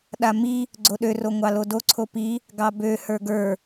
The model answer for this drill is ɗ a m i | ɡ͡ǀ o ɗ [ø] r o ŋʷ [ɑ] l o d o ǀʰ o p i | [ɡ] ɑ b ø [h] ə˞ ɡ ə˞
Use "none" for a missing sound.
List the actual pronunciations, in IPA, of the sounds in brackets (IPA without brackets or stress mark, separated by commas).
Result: ø, ɑ, ɡ, h